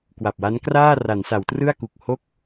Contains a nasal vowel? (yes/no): no